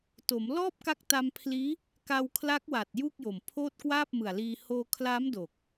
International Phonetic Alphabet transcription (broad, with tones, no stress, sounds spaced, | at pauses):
t o˩˦ m l ɔː˥˩ p̚ k a˦˥ k̚ t a˧ m pʰ l iː˦˥ | k a˧ w kʰ l a˦˥ k̚ w a˨˩ t̚ j uː˥˩ k̚ j o˨˩ m pʰ oː˥˩ t̚ k w aː˥˩ p̚ m ɯ˨˩ a̯ l iː˧ h oː˧ kʰ l aː˦˥ m d o˨˩ k̚